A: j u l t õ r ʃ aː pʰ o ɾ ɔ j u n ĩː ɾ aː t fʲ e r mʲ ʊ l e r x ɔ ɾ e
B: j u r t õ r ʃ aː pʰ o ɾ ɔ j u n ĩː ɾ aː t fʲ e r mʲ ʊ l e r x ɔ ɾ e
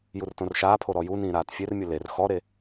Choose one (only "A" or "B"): B